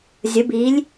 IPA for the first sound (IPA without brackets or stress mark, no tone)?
zʲ